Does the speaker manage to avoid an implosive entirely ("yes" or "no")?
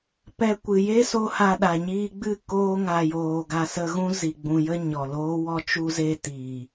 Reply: no